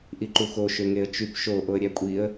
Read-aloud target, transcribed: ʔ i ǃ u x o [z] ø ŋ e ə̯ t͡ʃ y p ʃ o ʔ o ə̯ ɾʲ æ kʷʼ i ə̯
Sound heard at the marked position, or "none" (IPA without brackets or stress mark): ʃ